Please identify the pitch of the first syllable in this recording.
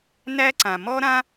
high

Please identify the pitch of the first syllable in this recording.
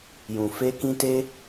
low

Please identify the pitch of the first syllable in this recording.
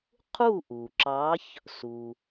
falling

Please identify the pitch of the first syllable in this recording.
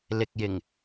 low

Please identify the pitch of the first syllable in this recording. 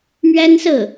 high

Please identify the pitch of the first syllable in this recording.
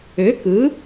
rising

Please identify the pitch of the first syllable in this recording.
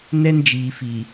high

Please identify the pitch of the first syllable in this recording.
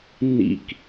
low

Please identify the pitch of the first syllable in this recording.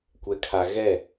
low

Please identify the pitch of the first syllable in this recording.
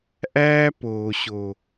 high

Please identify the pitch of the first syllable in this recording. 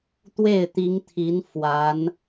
falling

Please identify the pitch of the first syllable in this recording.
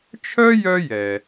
high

